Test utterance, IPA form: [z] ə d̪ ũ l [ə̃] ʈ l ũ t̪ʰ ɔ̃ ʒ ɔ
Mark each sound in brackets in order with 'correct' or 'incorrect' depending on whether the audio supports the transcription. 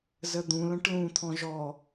correct, correct

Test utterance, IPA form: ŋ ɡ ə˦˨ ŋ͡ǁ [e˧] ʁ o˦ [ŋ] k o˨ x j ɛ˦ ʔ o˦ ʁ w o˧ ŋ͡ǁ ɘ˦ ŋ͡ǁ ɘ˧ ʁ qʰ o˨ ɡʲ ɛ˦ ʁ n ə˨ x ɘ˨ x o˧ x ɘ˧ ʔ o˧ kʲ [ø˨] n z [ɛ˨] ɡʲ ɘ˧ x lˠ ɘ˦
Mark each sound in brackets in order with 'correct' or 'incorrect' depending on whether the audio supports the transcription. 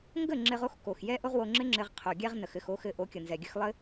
incorrect, incorrect, incorrect, correct

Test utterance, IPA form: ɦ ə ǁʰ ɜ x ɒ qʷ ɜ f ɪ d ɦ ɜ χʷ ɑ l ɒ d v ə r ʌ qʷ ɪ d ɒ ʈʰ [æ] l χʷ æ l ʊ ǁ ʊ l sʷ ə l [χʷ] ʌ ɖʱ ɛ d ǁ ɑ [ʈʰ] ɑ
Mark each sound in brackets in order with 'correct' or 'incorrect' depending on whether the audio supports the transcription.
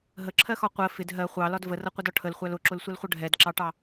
incorrect, correct, incorrect

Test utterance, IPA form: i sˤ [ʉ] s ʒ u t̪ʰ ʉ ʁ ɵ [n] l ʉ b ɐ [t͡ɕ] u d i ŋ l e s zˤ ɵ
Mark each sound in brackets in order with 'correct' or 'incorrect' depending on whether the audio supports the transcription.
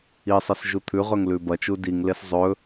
incorrect, incorrect, incorrect

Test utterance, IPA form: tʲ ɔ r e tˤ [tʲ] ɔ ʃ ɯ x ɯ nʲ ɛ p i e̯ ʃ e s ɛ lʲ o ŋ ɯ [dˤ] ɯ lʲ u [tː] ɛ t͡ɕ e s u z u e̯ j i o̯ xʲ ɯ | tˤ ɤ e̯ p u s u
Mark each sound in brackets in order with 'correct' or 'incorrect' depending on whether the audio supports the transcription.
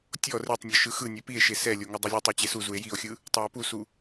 incorrect, correct, incorrect

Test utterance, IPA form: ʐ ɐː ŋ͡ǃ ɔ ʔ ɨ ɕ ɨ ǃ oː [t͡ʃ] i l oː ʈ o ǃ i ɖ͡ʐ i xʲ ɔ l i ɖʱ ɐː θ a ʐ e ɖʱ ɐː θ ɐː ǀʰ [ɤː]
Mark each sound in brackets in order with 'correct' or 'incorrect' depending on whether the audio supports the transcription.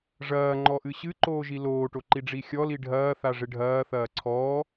incorrect, incorrect

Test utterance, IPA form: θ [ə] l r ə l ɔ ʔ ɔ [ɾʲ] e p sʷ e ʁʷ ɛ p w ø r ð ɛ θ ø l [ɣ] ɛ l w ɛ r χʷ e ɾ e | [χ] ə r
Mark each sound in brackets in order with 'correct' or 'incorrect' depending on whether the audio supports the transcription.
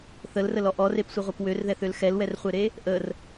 correct, incorrect, incorrect, incorrect

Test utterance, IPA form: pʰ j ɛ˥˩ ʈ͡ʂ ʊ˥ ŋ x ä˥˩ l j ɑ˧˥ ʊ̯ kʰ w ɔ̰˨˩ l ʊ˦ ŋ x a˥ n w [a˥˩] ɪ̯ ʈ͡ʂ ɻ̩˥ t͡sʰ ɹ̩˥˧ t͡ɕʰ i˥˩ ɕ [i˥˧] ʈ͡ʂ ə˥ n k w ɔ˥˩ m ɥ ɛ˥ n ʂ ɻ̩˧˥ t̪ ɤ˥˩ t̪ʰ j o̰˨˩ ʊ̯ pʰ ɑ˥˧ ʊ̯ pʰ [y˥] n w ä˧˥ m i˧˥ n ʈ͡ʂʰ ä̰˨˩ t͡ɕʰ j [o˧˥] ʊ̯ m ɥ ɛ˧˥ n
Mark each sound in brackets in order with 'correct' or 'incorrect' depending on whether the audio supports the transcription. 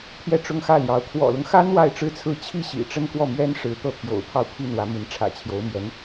correct, incorrect, incorrect, correct

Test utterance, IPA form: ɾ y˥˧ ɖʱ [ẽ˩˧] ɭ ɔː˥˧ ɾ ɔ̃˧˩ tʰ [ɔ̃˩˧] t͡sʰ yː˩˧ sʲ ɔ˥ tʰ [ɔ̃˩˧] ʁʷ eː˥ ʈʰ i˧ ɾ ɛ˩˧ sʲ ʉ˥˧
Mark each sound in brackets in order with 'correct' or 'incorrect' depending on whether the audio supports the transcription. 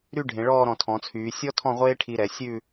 correct, correct, incorrect

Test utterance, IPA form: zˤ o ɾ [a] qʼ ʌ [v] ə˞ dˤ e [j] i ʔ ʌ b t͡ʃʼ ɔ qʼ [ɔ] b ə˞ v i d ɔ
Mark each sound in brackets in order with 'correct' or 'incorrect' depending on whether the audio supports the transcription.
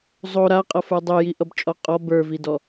correct, incorrect, correct, correct

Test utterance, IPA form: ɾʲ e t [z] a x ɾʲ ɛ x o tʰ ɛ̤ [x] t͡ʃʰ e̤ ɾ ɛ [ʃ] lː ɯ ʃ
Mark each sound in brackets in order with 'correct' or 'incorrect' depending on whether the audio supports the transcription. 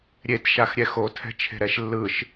incorrect, incorrect, correct

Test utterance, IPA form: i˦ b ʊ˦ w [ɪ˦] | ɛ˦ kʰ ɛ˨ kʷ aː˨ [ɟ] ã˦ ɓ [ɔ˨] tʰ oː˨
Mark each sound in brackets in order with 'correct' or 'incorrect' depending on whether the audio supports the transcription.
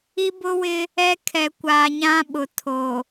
correct, incorrect, incorrect

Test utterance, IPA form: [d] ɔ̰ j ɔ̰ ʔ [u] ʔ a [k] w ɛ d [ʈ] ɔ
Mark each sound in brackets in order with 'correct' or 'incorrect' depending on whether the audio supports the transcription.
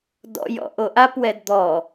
correct, incorrect, incorrect, incorrect

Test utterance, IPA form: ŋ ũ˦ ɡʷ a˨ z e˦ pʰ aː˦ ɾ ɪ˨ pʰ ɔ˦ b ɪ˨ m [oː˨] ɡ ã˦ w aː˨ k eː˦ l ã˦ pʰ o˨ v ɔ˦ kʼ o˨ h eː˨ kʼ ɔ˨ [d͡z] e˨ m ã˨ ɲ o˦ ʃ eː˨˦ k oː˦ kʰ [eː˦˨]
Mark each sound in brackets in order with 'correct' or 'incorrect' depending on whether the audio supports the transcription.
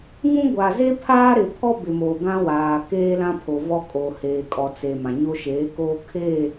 correct, incorrect, correct

